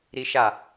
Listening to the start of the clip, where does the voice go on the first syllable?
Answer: high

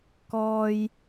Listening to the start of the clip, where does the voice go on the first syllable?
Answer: low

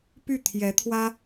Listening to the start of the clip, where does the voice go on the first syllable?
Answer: falling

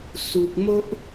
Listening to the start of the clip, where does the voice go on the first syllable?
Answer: low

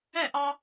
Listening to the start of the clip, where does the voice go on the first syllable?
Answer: falling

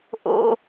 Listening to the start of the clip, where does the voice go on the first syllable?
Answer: high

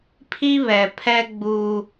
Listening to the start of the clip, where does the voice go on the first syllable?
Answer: high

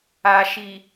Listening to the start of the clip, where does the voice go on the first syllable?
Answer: low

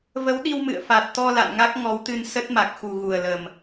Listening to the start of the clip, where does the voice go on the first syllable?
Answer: rising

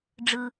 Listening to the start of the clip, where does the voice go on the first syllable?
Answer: low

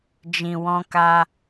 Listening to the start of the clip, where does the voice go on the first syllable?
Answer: low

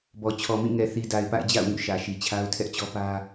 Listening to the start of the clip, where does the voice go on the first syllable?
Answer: low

